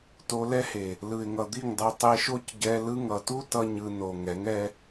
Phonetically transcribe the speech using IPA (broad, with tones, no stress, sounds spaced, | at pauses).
t o˧ l ɛ˦ h e˨ | l ɯ˨ ɪ̯ ŋ ʌ˨ d̪ i˦˨ ŋ dˤ o˧ tˤ e˧ ʃ o˦ c ɟ ɛ˧ l ɯ˧ ŋ ʌ˨ t u˦ t ʌ˦ ɲ ɯ˧ n o˨ ŋ ɛ˨˦ ŋ ɛ˧